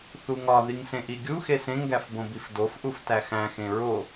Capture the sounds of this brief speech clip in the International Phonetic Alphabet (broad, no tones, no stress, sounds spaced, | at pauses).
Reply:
θ u ŋ ɒ ð i ŋ s ẽ ʔ i ɡʲ u x e s ẽ ŋ ɡ æ f b õ b i f d o f ʔ u f t æ x æ̃ x ẽ ɹ o